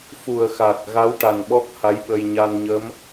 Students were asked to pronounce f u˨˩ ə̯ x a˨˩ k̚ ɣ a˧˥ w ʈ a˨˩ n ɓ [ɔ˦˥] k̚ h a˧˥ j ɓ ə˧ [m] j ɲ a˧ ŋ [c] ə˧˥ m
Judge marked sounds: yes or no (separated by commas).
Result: yes, no, no